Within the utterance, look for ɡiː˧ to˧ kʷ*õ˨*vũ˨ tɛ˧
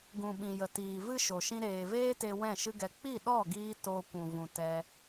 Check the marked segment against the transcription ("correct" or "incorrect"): incorrect